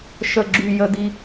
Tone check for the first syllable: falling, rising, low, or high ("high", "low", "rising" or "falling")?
low